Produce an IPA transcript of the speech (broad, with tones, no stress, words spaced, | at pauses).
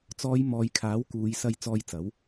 t͡sɔː˨˧j mɔː˨˧jkʰaː˨˥w kuː˨˧jsɐ˧j t͡sɔː˧jt͡sɐ˨˥w